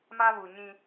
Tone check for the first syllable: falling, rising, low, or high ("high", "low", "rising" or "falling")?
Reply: high